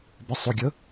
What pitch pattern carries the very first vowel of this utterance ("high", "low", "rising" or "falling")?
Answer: low